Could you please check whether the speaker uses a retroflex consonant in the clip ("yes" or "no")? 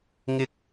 no